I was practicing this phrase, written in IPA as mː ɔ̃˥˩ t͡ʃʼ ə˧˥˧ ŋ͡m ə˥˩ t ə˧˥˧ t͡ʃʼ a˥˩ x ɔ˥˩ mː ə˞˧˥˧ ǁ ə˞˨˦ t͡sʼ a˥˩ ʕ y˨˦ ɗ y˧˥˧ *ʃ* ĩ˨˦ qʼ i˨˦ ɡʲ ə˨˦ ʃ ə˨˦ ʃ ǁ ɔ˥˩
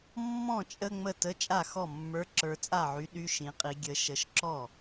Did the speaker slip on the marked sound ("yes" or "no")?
no